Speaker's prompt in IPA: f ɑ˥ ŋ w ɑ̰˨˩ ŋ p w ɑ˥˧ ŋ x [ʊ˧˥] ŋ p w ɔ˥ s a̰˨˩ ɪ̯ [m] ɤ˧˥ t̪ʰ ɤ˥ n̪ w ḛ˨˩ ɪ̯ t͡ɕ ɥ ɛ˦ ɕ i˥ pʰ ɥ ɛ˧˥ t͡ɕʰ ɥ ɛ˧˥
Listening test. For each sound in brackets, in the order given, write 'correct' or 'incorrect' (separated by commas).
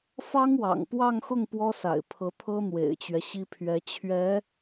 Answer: incorrect, incorrect